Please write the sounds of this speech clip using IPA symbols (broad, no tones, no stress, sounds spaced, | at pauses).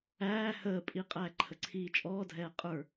æː h əː pʼ i qʼ æː ǃʰ ə ǀʰ iː t͡ʃʼ ɔː dʱ ɛː qʼ ə˞